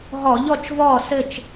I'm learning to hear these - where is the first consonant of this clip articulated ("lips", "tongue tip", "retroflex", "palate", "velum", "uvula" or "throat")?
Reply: throat